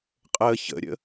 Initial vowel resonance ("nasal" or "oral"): oral